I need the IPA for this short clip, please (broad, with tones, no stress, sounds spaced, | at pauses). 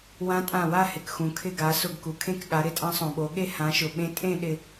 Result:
w ã˧˥ tʼ ã˧˩ w a˥˧ h ɪ˩ k x ũ˩ kʰ ɪ˧˩ ɡ a˩˧ s ʊ˧˩ ɡ k u˩ kʰ ẽ˥˧ k ɠ a˩˧ ɾ ɪ˥˧ tʼ ã˧˥ sˤ õ˩ ɓ o˩˧ ɠ e˥˧ h ã˩˧ ʃ ʊ˩ ɓ ẽ˧˥ tʼ ẽ˥˧ ɗ ɪ˥˧